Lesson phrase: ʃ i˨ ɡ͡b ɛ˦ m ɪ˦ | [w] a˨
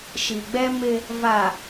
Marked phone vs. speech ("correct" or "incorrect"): incorrect